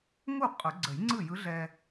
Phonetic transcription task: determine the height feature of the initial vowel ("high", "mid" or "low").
high